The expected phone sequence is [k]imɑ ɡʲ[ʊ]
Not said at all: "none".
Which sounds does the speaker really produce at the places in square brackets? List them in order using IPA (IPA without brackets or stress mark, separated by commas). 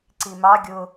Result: ǀ, ʊ